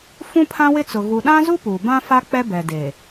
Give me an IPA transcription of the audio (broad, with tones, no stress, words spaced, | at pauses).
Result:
fũ˦pʰã˦wɪ˦t͡sʊ˨ ɣu˨ɗã˦zu˦ puː˨ bã˦ fa˦k͡pɛ˦bɛ˨ deː˨